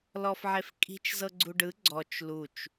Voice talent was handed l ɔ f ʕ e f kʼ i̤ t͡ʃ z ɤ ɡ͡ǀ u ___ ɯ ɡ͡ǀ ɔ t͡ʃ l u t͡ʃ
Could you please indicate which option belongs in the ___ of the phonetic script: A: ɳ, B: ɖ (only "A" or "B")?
B